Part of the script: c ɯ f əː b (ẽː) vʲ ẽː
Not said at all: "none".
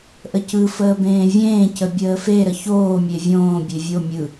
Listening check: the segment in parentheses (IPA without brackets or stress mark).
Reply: ẽː